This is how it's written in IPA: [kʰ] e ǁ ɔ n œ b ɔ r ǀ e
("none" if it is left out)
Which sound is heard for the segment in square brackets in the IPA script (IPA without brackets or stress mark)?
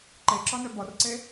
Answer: ǃ